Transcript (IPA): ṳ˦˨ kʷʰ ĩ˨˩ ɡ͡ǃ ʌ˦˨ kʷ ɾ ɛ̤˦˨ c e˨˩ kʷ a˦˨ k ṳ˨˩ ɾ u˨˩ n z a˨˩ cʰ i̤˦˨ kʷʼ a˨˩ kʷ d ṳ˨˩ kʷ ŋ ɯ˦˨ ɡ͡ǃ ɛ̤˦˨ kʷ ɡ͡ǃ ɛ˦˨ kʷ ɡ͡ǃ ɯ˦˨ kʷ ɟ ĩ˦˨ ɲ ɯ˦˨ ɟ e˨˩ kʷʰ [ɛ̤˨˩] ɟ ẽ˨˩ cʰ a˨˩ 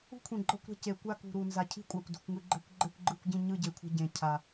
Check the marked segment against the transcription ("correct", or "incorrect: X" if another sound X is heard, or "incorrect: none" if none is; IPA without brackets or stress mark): incorrect: ɛ̤˦˨